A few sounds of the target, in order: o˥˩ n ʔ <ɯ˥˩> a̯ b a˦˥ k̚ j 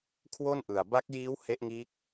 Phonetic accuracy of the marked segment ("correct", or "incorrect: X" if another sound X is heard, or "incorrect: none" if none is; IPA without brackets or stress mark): incorrect: ɯ˨˩